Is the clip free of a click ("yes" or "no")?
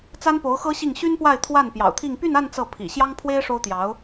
yes